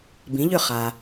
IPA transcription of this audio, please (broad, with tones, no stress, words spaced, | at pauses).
bĩ˩˥ʎʏ˥˩ χa˩